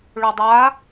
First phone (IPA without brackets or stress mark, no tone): ɭ